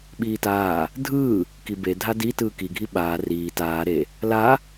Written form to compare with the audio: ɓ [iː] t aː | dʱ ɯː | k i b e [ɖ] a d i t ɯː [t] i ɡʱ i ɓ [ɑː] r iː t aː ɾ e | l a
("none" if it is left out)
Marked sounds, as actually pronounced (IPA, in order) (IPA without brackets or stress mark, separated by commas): iː, dʱ, k, aː